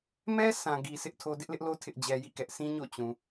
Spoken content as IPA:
m ɛ˦ s ã˨ ɡ i˨ sʰ ɪ˦ ʔ tʰ o˦ d ɪ˦ ʔ l ɪ˦ ʔ l o˦ tʰ ɪ˦ ʔ d͡ʑ ɛ˦ j ḭ˦˨ k ɛ˦ ʔ sʰ ĩ˦ ɲ o̰˦˨ t͡ɕ ũ˨

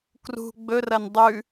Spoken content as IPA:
k r ṳ ɡ͡b ɵ r ɐ n dˤ ʉ

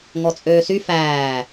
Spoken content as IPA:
ŋ ɔ t͡sʼ øː s y f æː

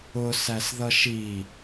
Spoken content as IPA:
ʊ s æ s ð ʌ ʃ i

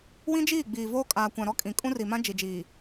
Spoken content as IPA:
w ĩ˦ d͡ʒ iː˦˨ ɡ͡b iː˨ v oː˦ kʼ aː˨ kʷ ã˨ ɾ ɔ˦ kʼ ĩ˨ kʼ ũ˦ r i˨ m ã˦ d͡ʒ i˨ d͡ʒ iː˨

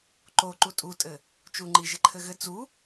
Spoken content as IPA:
ǃ o ǃ u tʼ u tʼ ɘ | t͡ʃ u ŋ͡ǃ i ʒ ɘ ǃʰ ɘ ɣ ɘ t͡s u

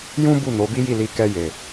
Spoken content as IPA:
j ũ˦ b u˦˨ n o˨˦ b i˦ j i˦˨ l i˧ k ɛ˧ j e˨

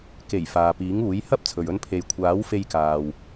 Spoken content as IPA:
k e˨˩ j f aː˨ p iː˨˥ ŋ uː˨˥ j h ɐ˥ p̚ t͡sʰ ɵ˨ ɥ ɵ˧ n pʰ e˨ j kʷʰ aː˨˥ w f e˧ j k aː˨ w

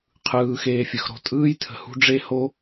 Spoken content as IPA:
qʰ ɯː˦ x eː˦ fʲ ə˧ x ɾ o̤˧ tʼ ɯː˦ j tʰ ə̤˧ h ṳ˦ ɖ͡ʐ e˦ h o˦

